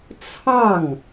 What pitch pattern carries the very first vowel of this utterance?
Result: falling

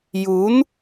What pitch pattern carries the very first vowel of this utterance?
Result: rising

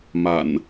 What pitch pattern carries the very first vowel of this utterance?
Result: low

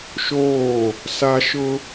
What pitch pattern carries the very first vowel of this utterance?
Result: falling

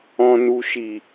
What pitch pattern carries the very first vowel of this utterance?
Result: low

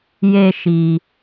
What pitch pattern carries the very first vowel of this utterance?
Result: high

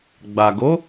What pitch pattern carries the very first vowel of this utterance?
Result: low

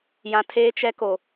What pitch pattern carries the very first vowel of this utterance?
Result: low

